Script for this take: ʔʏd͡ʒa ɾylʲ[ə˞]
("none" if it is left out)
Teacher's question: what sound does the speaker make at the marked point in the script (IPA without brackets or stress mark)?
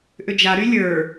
ə˞